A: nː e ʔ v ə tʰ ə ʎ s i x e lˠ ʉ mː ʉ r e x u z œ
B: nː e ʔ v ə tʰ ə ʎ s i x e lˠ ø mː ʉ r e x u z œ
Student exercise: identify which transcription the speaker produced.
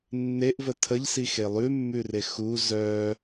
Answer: A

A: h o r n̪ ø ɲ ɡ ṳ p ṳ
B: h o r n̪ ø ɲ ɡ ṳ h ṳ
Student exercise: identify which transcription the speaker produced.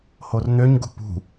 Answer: A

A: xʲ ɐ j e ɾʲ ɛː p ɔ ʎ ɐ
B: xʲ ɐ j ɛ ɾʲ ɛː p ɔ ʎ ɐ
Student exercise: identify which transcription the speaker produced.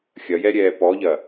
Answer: B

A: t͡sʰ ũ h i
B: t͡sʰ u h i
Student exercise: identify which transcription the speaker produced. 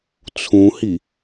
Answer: A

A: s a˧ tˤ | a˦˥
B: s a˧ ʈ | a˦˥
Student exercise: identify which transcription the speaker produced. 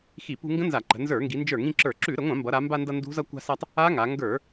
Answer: A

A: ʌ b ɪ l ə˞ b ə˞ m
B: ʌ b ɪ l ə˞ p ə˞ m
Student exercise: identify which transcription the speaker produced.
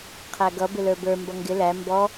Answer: A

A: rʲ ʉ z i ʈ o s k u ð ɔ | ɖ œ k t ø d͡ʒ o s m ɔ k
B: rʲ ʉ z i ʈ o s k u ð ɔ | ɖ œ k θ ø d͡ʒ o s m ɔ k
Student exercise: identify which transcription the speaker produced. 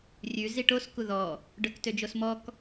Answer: A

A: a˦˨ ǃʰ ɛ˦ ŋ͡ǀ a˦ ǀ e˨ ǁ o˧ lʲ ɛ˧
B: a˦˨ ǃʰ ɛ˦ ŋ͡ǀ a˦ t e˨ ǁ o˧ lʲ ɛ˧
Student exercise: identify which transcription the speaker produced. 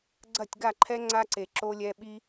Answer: A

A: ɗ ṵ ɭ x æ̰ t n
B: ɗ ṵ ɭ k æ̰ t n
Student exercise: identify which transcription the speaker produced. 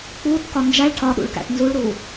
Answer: B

